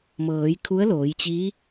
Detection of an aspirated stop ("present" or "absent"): present